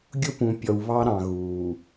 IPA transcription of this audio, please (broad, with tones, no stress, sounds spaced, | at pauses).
ɡʲ ʊ˦ p ũ˨ pʲ ɔ˨ w β ɑ˦ ɾ ɑ̃˨ ɣ uː˨